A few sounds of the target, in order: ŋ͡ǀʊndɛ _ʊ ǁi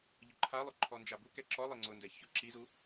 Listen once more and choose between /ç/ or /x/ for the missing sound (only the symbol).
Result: ç